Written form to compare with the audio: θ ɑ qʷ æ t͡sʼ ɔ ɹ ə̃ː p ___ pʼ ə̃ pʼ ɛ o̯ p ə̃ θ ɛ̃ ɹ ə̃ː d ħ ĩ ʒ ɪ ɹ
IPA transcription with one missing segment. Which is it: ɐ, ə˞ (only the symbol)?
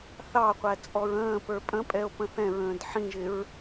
ə˞